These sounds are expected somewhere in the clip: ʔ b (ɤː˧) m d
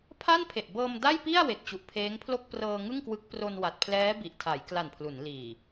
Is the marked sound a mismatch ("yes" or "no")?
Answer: no